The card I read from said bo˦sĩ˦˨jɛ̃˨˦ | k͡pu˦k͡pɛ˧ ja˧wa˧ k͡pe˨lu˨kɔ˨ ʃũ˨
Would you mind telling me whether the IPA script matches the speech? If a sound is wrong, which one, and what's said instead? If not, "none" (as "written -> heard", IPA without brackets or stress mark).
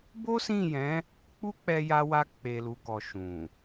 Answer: none